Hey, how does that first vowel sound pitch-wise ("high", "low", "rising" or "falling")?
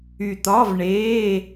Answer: low